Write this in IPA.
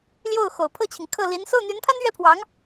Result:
l j o˥˩ ʊ̯ x o˨˩ ʊ̯ pʰ ɤ˥˩ t͡ɕʰ i˩ ŋ kʰ ɤ˥˩ l i˧˥ n s o˥˩ ʊ̯ n̪ y˧˥ n pʰ a˥ n ɥ ɛ˥ pʰ w ɑ˧˥ ŋ

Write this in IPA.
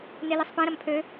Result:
n e l i sˤ p ɛ̃ ɾ ɐ m pʰ ø

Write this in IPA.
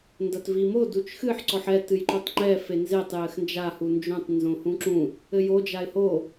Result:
n d ɐ t v i m o d u t͡ʃ x ɨ ħ ǀ ɔ ħ ɛ t ɨ j ǃ u tˤ ŋ͡ǃ ɛ f e n z e tˤ j ɘ x n d͡ʒ a h u n d͡ʒ õ tˤ n z õ h ũ ǁ ũ | ɘ j o d͡ʒ a ɪ̯ h o

